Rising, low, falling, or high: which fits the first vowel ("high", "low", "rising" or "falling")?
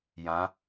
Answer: rising